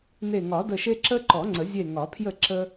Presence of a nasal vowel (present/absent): absent